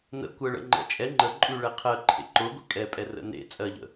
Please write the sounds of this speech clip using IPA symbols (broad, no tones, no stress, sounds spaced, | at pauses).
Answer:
n ə̰ kʷ ɜ ɭ ə̰ ŋ͡ǃ ɛ̰ t͡ʃʼ ɛ ŋ͡ǃ ə ǃʼ ʉ ɭ ɛ qʰ ɜ ǃʰ ḛ ǃ ʊ ɡʷ ə̰ kʼ ɛ pʼ ɛ r ə̰ n ḛ t͡sʼ ɜ ʎ ə̰